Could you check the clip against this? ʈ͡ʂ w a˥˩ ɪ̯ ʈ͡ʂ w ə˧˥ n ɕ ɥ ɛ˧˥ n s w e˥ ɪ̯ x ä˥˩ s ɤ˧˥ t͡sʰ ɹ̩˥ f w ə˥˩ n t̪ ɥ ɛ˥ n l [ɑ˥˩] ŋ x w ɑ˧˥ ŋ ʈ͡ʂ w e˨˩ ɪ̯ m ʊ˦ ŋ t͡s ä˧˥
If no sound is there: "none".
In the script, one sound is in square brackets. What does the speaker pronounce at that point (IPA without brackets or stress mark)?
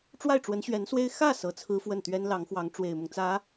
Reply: ɑ˧˥